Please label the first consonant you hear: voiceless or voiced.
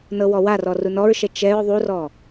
voiced